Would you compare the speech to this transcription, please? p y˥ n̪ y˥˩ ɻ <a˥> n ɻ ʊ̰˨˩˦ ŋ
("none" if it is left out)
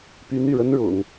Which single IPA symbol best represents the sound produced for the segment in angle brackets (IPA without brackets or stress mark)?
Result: ə˥